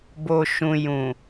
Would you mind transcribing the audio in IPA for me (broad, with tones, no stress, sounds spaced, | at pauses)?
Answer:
b o˨ ʃ ũ˨ j ũ˨